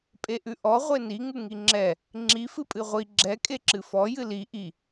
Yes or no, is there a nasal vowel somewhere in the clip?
no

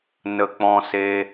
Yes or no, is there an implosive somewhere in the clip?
no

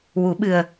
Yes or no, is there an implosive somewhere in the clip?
yes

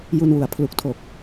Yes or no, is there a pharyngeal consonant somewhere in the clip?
no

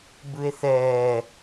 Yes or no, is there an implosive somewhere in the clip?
no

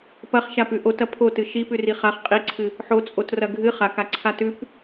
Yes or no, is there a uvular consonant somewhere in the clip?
yes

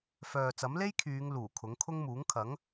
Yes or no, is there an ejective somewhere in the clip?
no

